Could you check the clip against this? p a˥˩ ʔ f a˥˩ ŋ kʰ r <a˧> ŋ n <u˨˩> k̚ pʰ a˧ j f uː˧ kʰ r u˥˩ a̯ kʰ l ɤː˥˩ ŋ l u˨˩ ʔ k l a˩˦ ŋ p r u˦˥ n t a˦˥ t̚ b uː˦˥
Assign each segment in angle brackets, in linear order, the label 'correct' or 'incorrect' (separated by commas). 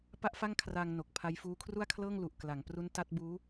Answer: correct, incorrect